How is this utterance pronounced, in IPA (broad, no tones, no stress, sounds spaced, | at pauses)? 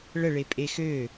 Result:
ɭ ə ɭ e pʼ e x ø